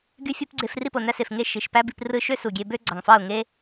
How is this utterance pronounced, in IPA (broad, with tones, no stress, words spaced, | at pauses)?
ɡy˦fʲo˦p ɡ͡ǀe˧f ri˦˨p o˨næ˦se˨f ŋe˧ ʃi˨ʃpæ˦bi˧p rɯ˧ʃø˦ su˨ɡʲe˧bø˦ ɡ͡ǀɑ˨ŋfɑ˦˨ʊ̯ ŋe˦